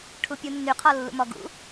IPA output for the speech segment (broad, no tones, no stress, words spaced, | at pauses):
ʈʰupʲunːyqʰɔ lːṵmɔɡṵ